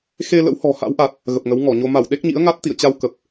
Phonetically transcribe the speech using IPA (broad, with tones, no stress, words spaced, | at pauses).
xe˧ lə̰˧˥whɔ̤˨˩ha̰˧˥wʔa˨˩t̚ | ɣə˨˩p̚ŋə˨˦wŋɔ˧˩ɲo˧ ma˧˩wɗe˦˥k̚ɲḭ˧˥ə̯ŋa˦˥t̚ t̪ḭ˧˨ə̯t͡ɕa˧wkə˨˩p̚